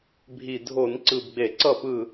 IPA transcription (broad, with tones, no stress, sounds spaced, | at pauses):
bʱ i˨˩ dʱ o˧˩˧ n ǀ ɯ˨˩ b ɡ͡b e˧˩˧ ǀ ʌ˥˨ p ɯ˥˨